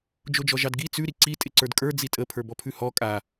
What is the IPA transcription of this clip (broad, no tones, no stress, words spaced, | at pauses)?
d͡ʒod͡ʒɔʒɑdɡi t͡sʉ ɾiǀi tʼɪǀə˞dkʼə˞ d͡zitʼə pʰə˞bɔpʰʉhɔ kʼa